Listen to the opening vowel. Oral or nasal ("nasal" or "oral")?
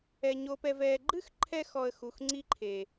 oral